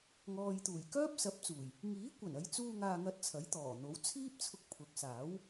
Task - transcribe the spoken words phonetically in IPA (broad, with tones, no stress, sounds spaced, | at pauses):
ŋ ɔː˨ j t̪ uː˨˩ j k œː˥ p̚ s ɐ˨˥ p̚ t͡s uː˨˩ j | ŋ iː˨˥ kʷ ɐ˨˩ n ɐ˨˧ j t͡s uː˧ ŋ aː˧ ŋ ɐ˧ t̚ t͡sʰ ɐ˨˥ j t̪ ɔː˨˩ n̪ o˨˥ w t͡sʰ iː˥ p̚ t͡sʰ ʊ˧ k̚ pʰ ʊ˨˥ k̚ s aː˨˥ w